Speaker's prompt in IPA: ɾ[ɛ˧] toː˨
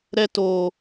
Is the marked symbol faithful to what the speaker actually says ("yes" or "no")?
yes